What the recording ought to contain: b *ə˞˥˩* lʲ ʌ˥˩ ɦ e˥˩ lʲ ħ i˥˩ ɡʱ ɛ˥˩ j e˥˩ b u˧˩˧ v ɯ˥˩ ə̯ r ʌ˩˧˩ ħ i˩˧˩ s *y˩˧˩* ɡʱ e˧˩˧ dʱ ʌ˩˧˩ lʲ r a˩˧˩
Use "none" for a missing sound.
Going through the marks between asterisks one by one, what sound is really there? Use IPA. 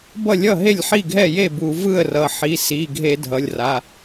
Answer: ʌ˥˩, i˩˧˩

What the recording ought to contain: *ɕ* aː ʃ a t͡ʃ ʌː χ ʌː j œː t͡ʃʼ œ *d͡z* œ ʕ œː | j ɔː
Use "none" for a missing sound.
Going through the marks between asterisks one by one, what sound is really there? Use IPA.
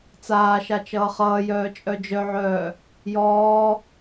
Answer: t͡s, d͡ʒ

